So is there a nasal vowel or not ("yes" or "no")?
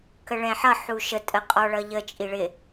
yes